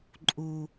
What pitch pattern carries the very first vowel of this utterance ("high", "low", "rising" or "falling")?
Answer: low